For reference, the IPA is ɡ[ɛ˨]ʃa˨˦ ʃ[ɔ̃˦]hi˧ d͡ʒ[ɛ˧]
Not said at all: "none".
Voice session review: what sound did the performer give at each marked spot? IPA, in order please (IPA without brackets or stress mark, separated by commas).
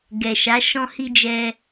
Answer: ɛ˨, ɔ̃˧, ɛ˧